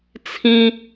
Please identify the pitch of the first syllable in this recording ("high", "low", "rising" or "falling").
high